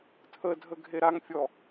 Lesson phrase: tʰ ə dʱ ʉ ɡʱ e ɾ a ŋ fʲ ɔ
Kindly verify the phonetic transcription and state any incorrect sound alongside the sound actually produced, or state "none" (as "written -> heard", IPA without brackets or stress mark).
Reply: ʉ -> ə